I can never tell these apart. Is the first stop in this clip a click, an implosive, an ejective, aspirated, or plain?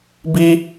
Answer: plain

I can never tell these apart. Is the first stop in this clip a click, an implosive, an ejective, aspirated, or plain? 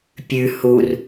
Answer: plain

